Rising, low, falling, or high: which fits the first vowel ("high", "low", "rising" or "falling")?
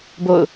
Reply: falling